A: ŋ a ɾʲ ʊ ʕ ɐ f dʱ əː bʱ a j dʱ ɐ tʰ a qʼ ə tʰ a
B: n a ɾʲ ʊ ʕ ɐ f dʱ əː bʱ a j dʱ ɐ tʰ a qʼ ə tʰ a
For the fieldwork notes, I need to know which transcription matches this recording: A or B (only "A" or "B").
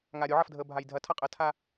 A